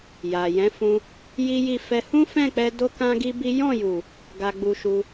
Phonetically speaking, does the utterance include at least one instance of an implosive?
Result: no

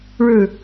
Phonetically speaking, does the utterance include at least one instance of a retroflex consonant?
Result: yes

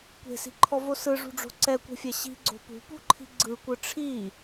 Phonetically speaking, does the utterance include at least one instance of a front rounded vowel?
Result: no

